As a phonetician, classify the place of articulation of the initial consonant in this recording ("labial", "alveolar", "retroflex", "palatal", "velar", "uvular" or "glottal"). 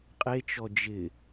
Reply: uvular